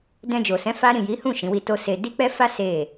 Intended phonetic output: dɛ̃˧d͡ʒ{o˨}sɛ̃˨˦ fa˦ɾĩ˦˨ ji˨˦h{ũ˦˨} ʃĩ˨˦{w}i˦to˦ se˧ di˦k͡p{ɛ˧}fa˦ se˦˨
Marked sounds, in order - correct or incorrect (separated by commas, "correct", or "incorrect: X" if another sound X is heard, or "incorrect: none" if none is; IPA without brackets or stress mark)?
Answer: correct, correct, correct, incorrect: ɛ˦